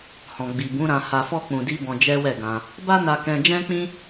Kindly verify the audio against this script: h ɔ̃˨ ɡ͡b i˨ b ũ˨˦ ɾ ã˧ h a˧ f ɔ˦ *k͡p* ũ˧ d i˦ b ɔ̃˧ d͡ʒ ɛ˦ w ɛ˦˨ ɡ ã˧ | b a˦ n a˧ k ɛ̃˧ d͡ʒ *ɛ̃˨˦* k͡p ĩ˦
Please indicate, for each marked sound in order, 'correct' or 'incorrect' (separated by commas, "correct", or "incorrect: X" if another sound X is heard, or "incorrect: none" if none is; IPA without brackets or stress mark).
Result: correct, incorrect: ɛ̃˦